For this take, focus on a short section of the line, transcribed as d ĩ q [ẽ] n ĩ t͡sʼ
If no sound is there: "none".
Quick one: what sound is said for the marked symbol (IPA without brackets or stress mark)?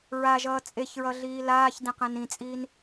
ẽ